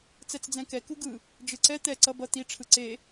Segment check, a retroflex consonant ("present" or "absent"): present